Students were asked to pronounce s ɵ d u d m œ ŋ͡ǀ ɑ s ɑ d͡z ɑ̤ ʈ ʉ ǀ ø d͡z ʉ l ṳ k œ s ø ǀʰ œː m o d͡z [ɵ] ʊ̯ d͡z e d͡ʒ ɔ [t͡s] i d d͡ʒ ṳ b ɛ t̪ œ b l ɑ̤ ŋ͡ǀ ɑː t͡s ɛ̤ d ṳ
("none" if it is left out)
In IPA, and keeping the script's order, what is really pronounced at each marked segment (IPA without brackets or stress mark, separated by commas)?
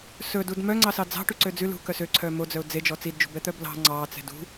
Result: œ, t͡s